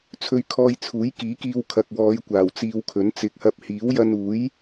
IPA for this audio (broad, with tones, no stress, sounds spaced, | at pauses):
t͡sʰ ɵ˧ ɥ kʰ ɔː˧ j t͡sʰ uː˨˥ j k iː˨˥ k iː˧ w kʰ ɐ˨ k̚ w ɔː˨˧ j kʷ aː˨˩ w t͡s iː˧ w kʰ ɵ˨˥ n t͡s ɪ˨˥ k̚ h ɐ˧ p̚ h iː˨˥ w j ɐ˧ n uː˨˥ j